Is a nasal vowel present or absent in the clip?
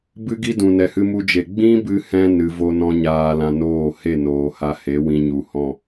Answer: present